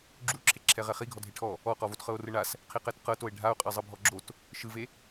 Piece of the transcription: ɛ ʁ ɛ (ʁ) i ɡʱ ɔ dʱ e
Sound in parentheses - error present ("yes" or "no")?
yes